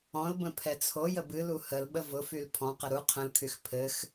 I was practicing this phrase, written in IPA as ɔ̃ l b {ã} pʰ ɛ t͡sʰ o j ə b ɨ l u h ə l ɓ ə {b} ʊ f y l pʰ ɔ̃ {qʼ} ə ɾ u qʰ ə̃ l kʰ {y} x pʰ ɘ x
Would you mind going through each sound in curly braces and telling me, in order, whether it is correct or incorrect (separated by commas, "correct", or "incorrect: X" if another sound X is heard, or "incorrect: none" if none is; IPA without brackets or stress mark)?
incorrect: ə̃, incorrect: v, incorrect: q, correct